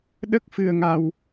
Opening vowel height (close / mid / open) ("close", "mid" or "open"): mid